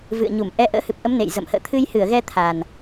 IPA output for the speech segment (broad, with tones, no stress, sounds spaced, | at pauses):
v ɨ̰˧˨ ə̯ ɲ u˧˩ m ʔ ɛ˨˦ ʔ ə̰ː˧˥ h ɨ˨˩ p̚ ʔ ə˨˦ m n ḛ˧˨ j z ə̰˧˨ m h ə̰ː˧˨ t̪ʰ ɨ˧ j h ɨ˧˩ ə̯ ɣ ɛ˧ t̪ʰ a˨˩ n